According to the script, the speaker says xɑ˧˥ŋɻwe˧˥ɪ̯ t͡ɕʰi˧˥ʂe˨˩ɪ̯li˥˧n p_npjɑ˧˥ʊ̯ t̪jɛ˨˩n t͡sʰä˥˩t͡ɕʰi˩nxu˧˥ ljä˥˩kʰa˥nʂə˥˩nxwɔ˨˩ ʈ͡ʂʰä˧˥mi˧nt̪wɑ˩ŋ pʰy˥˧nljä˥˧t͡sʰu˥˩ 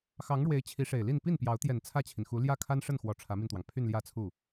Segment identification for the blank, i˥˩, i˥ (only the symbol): i˥˩